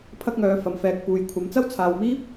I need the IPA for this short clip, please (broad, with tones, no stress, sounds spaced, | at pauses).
pʰ ɐ˥ k̚ ŋ œː˨˧ f ɐ˨ m f ɛː˨ k̚ p uː˨ j kʷʰ ɐ˨˥ m t͡s ɐ˥ w t͡sʰ aː˨ w m iː˥ p̚